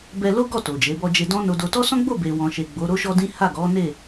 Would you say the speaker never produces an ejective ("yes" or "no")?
yes